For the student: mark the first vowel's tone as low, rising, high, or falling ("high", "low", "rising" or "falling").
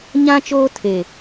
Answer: high